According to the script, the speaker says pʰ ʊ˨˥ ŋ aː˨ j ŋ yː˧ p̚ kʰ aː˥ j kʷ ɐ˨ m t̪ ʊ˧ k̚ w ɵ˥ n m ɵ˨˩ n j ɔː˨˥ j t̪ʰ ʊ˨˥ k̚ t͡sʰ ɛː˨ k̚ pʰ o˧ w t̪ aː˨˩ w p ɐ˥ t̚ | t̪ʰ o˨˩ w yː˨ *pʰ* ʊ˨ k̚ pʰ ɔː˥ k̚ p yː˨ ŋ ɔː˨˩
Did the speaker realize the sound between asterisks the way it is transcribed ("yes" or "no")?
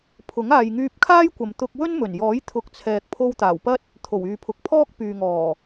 yes